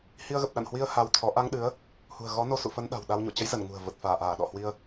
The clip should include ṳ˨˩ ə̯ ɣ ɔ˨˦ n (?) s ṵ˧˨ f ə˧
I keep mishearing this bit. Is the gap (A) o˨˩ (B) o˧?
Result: B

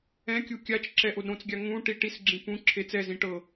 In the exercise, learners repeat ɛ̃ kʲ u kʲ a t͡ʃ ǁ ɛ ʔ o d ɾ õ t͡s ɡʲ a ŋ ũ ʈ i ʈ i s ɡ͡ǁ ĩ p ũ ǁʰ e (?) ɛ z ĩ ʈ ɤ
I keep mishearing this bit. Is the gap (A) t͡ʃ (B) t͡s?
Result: B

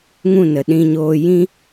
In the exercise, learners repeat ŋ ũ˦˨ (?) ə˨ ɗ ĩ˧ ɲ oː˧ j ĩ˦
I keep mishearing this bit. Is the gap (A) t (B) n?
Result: B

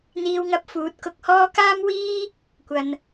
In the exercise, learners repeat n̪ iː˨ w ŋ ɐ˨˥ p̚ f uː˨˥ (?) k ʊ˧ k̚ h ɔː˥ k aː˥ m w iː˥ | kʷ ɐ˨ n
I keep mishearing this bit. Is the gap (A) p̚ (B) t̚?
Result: B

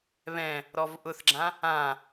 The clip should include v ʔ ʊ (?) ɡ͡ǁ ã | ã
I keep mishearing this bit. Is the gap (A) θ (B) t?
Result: A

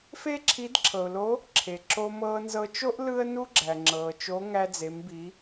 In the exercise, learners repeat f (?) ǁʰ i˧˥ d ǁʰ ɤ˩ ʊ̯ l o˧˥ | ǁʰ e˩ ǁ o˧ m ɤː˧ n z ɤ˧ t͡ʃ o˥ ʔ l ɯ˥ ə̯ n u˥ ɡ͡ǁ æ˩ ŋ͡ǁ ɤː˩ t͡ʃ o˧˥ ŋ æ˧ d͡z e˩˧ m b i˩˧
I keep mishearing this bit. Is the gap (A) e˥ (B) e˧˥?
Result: A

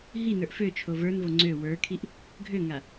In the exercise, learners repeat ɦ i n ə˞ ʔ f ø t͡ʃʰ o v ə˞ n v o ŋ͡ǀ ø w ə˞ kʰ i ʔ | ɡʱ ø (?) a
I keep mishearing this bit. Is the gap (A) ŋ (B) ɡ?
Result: A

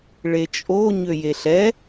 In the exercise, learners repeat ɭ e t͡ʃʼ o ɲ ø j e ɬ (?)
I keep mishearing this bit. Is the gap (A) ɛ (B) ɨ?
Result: A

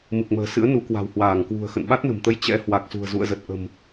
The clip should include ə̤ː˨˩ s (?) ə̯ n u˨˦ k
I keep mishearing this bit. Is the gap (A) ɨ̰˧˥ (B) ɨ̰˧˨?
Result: A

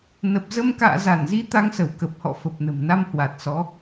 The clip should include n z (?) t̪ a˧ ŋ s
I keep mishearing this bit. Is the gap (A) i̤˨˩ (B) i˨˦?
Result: B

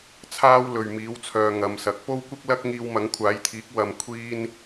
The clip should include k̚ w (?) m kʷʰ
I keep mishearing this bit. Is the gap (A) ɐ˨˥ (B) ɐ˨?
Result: B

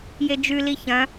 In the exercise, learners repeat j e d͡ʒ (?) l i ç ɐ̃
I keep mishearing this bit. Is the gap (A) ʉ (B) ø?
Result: A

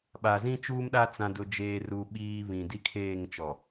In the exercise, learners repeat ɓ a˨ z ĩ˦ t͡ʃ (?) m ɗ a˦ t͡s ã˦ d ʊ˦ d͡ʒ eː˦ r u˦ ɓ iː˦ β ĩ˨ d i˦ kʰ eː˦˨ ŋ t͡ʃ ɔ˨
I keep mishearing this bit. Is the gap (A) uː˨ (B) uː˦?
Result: B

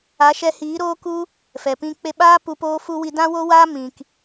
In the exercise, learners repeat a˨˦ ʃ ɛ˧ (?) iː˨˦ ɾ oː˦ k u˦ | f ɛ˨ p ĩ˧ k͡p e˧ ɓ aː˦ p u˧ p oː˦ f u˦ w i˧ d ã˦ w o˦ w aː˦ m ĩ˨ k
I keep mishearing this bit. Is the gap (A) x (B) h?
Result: B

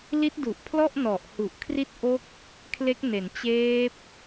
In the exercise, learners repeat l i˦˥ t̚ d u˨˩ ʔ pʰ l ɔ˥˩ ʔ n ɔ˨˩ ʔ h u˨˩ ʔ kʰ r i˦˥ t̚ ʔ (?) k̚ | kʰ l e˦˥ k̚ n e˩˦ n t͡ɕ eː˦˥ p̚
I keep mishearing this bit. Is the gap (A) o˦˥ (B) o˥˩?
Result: A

